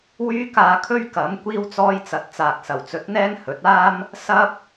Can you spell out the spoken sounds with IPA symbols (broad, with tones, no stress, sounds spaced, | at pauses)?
w yː˥ k aː˧ kʰ ɵ˥ ɥ k ɐ˨˥ m kʷ iː˥ w t͡s ɔː˥ j t͡s ɐ˧ t̚ t͡s aː˨ k̚ s ɐ˨˩ w t͡s ɵ˨˥ t̚ n̪ ɛː˥ ŋ h ɵ˨˥ t̚ aː˥ m | s ɐ˥ p̚